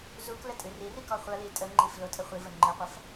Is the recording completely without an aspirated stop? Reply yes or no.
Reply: yes